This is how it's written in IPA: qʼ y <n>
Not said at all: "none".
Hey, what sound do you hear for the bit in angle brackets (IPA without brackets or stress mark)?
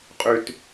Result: t